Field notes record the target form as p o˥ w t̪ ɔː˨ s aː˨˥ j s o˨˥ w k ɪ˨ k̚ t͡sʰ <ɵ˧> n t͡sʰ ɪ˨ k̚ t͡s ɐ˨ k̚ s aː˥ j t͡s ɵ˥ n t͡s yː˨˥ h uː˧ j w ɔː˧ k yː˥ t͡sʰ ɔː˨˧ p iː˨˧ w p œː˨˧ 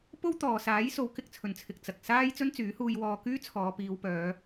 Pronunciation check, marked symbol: incorrect: ɵ˨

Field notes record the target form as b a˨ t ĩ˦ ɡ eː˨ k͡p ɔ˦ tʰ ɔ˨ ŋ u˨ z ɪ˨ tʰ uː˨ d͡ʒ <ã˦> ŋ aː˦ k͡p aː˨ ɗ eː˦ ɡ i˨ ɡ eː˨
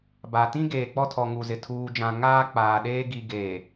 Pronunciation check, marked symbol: incorrect: ã˨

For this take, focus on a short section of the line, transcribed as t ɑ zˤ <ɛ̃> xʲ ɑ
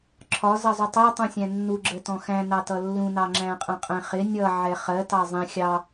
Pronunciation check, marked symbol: correct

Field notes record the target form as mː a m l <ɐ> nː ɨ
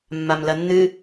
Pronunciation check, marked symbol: correct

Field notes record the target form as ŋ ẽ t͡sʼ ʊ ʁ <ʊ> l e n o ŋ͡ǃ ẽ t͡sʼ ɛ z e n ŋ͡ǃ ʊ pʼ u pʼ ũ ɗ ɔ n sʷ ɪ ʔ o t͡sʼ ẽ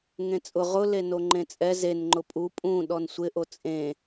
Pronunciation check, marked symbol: correct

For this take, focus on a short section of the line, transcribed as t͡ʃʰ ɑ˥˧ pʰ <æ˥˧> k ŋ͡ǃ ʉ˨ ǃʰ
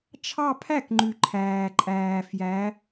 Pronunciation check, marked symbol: incorrect: æ˥˩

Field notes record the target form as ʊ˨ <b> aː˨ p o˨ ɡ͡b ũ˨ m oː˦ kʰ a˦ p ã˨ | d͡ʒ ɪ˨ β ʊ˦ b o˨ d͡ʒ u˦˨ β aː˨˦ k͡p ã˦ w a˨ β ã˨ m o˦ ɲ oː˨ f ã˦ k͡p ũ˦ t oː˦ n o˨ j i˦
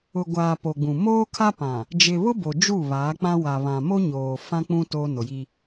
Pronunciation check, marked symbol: incorrect: ɡʷ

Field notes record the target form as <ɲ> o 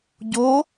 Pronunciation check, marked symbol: incorrect: ɟ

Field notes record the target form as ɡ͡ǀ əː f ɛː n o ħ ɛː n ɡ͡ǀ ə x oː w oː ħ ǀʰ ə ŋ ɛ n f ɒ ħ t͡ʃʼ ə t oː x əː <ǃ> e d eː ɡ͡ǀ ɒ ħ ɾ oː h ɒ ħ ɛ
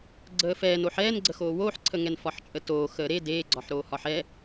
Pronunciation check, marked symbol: incorrect: ɾ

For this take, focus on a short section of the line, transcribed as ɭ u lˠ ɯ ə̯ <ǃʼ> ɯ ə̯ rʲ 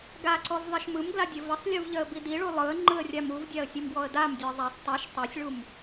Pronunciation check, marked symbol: incorrect: ŋ͡ǃ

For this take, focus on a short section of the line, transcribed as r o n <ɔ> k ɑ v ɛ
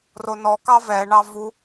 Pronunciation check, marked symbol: correct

